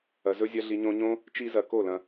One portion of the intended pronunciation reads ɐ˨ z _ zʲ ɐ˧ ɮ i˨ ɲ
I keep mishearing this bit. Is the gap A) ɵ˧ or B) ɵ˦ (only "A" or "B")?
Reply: A